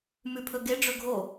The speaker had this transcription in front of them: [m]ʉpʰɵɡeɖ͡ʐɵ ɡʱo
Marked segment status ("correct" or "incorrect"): correct